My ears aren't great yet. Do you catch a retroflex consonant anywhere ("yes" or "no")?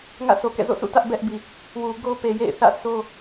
no